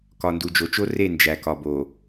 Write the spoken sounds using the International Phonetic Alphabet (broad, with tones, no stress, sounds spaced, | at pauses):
k ɒ˨ n d u˨ d͡ʒ o˨ t͡ʃ o˦ r e˦˨ n d͡ʒ æ˨ k ɒ˨ b o˨